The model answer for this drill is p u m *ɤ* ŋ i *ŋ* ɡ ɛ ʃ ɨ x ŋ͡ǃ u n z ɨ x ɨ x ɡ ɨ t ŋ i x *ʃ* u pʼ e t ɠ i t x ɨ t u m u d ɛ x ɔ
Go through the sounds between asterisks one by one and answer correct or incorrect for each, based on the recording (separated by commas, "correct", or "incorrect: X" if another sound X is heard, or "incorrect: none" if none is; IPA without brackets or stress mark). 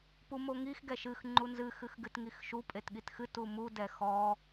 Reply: incorrect: o, incorrect: x, correct